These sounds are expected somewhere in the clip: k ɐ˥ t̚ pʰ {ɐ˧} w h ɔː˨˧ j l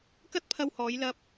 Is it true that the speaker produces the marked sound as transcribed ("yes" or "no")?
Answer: yes